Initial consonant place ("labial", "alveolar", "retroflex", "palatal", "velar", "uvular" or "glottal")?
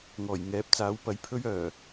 velar